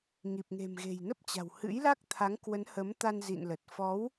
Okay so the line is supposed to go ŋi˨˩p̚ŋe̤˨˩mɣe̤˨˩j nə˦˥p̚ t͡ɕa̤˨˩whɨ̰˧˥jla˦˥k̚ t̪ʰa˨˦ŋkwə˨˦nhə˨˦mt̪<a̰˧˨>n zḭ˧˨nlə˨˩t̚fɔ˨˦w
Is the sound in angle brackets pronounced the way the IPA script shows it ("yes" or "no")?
no